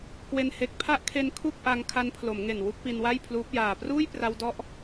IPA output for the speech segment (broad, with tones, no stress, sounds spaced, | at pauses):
k w e˧ n h e˨˩ k̚ pʰ a˦˥ ʔ kʰ e˧ n kʰ u˥˩ k̚ ʔ a˧ ŋ kʰ a˧ n pʰ l o˩˦ m ŋ e˨˩ n w u˥˩ k̚ p i˧ n w a˥˩ j pʰ l uː˦˥ p̚ j aː˨˩ p r uː˥˩ j p r a˧ w d ɔ˦˥ ʔ